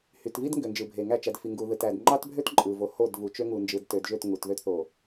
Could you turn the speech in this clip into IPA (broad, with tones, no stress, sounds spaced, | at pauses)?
h y˨ t v i˦ d ŋ ɡ ø˨ n d͡ʒ ɯ˨ bʱ e˨ ŋ æ˦˨ t͡ʃ æ˨ d f i˨ ŋ ɡ u˨ ð ɯ˨ t æ˨ d ŋ͡ǃ ɑ˦ t bʱ ø˦ t ǃʼ ɯ˨ v o˨ h o˦˨ d v u˨ t͡ʃ ø˦ ŋ u˨ n d͡ʒ ɯ˨ d t ø˨ d ʒ ø˦˨ t ŋ u˨ t ð ø˦ t θ o˨